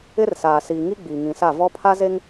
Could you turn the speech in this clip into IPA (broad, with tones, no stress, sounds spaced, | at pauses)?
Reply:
ɪ˦ r s aː˨ s iː˨ ŋ i˦ ɡ͡b iː˨ ŋ ĩ˨ s a˦˨ v ɔ˦ pʰ a˦ z e˦ ŋ